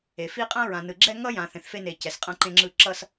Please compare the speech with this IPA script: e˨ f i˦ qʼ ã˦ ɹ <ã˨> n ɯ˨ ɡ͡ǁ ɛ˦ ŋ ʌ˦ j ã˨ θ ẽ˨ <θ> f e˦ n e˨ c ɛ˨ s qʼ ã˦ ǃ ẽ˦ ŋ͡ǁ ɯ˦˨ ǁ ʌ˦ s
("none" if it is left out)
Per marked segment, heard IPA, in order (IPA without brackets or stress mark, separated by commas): ã˨, θ